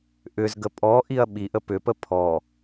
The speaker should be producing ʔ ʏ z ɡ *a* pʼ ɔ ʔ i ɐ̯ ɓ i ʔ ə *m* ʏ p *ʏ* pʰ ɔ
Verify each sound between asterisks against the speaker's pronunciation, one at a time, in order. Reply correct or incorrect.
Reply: incorrect: ə, incorrect: p, incorrect: ə

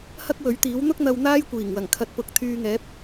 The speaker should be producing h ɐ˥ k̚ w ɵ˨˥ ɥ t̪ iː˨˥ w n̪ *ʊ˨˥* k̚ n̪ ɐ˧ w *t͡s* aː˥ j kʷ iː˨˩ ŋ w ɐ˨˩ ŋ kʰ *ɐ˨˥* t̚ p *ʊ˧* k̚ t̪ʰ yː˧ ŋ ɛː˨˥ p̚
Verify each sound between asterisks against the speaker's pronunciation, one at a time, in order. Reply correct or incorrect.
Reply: incorrect: ʊ˥, incorrect: n̪, incorrect: ɐ˧, correct

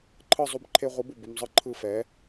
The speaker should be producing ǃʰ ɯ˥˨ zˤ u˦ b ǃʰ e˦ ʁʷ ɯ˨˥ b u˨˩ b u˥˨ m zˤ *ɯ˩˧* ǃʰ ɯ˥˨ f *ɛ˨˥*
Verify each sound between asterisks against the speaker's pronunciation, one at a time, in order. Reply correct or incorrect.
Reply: incorrect: ɯ˦, correct

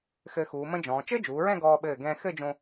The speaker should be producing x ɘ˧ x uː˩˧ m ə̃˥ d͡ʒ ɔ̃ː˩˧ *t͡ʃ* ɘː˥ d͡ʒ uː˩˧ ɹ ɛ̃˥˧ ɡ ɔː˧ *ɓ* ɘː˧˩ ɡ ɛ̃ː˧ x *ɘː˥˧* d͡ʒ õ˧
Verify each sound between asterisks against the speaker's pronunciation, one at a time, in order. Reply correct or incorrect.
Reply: correct, correct, incorrect: ɘ˥˧

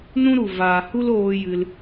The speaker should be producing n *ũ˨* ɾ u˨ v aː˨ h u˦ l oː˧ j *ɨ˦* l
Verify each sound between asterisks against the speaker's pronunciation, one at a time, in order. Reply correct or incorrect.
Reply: incorrect: ũ˦, incorrect: ɨ˧

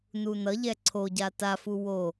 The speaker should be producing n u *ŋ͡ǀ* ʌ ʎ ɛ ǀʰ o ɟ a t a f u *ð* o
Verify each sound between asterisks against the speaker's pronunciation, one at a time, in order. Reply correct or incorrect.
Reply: incorrect: n, incorrect: w

